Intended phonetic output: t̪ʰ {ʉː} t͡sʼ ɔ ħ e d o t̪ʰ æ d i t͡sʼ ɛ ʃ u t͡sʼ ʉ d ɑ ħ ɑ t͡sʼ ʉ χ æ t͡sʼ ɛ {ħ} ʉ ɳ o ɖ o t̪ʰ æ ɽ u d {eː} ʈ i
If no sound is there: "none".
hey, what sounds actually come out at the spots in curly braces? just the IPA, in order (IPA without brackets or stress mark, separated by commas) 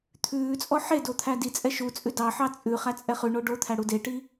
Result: ʉː, χ, e